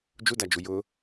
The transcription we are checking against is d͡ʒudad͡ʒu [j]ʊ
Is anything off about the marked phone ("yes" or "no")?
no